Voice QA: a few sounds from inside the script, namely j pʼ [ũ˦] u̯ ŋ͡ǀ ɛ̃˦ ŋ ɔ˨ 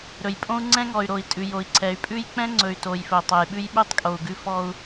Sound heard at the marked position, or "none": õ˦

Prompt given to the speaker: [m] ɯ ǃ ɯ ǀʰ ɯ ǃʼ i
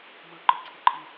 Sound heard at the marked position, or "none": m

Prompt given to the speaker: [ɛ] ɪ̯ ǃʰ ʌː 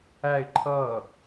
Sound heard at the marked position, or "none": æ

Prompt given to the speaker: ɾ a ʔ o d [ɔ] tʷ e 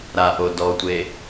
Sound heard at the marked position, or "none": ɔ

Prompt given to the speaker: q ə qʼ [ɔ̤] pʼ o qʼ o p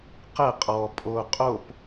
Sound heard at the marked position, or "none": ɔ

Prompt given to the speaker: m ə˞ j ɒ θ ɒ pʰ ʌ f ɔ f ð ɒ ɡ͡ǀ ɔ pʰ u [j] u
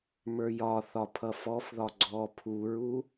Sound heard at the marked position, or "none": ɹ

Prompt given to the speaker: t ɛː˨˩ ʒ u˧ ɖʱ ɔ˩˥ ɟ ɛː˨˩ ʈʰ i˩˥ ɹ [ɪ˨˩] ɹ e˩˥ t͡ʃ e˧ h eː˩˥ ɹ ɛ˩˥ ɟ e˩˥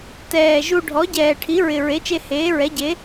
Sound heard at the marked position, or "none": ɪ˨˩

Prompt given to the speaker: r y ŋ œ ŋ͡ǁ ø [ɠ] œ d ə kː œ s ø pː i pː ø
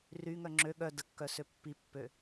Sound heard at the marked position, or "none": ɠ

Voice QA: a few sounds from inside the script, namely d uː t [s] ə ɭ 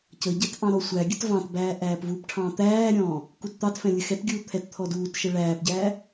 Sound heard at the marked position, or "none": ʃ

